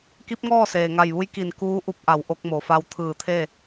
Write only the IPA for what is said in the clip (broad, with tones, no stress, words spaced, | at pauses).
ki˧˥p̚ŋɔː˥˨ seː˩ŋa˧˩jʋu˧˥j ki˧˩n kuː˧˥ʔu˧p̚ʔa˩˧w ʔo˧k̚ mo˩fa˧w t̪ʰɯː˧˩t̪ʰe˥˨